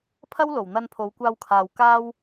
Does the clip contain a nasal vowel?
no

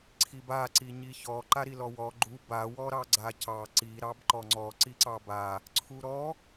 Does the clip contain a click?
yes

